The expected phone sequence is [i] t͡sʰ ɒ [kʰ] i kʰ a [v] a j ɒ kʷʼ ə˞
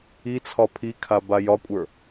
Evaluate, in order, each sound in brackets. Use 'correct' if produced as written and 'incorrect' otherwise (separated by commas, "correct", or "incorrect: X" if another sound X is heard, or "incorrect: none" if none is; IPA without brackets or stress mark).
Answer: correct, incorrect: pʰ, incorrect: b